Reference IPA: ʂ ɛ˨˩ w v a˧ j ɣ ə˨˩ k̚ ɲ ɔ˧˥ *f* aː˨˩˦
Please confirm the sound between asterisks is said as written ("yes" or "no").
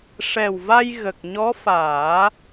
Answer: yes